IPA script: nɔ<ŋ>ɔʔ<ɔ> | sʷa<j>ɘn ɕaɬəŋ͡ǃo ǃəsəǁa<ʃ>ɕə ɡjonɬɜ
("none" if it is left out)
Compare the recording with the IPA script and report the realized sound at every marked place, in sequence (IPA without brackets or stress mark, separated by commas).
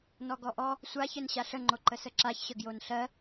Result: ɡ, ɔ, ç, ç